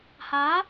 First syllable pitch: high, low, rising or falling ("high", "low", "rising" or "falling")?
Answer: rising